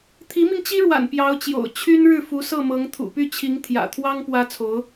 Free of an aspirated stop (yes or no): no